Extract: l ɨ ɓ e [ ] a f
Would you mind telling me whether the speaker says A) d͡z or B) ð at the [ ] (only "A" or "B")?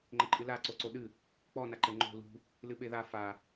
B